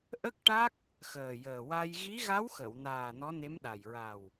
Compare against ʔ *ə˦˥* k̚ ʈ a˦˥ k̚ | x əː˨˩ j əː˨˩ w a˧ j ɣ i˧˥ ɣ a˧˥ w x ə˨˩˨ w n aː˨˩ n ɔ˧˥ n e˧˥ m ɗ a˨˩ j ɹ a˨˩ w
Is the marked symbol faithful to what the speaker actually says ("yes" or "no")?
yes